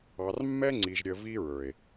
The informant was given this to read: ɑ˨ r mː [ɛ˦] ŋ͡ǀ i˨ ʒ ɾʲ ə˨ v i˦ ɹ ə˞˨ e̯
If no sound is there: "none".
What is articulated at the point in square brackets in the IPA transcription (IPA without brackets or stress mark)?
ɛ˦